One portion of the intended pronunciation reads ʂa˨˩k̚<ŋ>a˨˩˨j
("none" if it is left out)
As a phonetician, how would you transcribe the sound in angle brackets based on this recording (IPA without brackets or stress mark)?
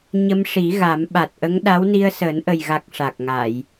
ŋ